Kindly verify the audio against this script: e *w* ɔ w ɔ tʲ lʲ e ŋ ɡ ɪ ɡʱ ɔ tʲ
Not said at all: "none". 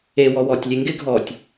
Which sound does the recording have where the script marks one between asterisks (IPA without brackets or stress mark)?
w